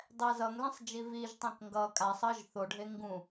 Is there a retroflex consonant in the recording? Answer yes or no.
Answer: yes